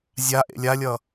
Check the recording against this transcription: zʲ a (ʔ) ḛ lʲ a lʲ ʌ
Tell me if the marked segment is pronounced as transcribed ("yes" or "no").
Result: yes